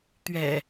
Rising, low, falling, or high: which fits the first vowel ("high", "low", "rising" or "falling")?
low